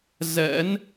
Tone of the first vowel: rising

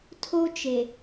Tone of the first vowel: high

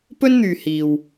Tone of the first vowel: high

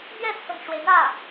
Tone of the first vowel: falling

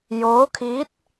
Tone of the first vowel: rising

